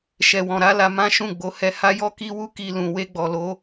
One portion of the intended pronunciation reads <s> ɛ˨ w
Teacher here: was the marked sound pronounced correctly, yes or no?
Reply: no